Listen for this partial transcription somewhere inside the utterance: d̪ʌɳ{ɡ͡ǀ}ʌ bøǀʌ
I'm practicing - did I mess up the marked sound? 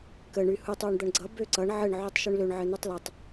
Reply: no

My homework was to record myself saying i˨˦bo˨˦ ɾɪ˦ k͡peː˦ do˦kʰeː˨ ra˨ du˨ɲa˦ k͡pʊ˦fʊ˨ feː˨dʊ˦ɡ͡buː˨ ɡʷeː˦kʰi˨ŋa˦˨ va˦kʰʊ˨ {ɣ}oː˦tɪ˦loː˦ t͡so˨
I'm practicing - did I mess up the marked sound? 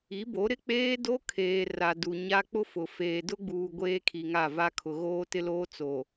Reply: no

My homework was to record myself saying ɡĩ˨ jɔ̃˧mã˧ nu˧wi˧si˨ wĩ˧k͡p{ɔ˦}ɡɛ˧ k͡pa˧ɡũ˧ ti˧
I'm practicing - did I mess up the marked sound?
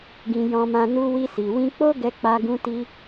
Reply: yes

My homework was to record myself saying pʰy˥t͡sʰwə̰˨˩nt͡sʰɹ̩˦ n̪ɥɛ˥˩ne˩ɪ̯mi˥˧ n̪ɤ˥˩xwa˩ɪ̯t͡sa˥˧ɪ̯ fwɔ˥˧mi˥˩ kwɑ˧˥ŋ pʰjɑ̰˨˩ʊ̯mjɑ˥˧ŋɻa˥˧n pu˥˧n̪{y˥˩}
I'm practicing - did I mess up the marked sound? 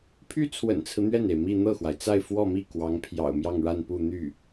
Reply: no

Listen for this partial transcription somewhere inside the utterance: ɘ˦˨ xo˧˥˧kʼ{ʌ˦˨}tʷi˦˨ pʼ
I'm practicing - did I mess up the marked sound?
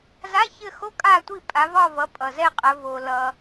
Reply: yes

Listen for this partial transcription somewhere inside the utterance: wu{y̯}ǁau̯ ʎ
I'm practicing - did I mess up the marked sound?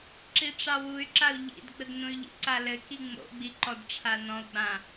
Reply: no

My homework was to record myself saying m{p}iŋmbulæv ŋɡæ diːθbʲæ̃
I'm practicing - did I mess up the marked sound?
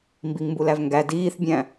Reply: yes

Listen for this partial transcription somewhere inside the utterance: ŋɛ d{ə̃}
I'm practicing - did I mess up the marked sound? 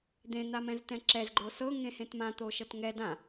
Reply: yes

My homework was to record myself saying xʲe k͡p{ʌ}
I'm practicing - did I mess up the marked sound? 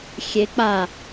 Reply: yes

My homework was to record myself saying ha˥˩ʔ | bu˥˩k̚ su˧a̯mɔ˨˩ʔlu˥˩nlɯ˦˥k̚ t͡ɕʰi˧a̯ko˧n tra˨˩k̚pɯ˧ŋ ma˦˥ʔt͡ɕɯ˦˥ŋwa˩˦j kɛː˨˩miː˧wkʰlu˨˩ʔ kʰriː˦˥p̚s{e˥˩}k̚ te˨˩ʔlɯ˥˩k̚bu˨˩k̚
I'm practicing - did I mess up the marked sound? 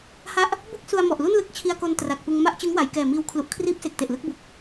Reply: yes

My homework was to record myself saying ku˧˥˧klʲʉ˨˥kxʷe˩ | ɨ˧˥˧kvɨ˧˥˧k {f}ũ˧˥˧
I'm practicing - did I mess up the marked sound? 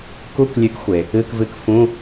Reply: no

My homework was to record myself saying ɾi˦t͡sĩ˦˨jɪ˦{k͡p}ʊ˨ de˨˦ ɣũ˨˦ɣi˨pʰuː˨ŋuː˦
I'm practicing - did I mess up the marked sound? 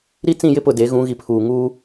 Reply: yes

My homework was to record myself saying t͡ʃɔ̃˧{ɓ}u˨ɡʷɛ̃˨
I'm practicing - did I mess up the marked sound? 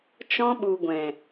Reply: no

